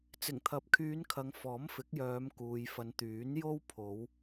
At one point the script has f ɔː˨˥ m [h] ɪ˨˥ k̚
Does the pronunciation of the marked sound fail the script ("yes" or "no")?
yes